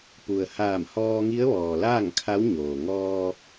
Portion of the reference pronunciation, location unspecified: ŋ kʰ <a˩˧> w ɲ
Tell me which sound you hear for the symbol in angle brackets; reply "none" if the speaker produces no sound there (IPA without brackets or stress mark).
a˧˥